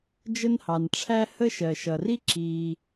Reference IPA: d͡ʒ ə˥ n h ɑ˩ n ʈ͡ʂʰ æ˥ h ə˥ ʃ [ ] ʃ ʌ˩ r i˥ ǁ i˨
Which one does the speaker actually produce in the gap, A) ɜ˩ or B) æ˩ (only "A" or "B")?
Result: A